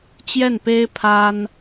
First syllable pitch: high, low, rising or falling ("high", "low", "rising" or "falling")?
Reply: falling